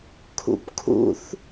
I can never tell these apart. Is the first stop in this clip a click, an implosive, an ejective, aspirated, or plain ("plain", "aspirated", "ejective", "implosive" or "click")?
aspirated